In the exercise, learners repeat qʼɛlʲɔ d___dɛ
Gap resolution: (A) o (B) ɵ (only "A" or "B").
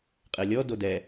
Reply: A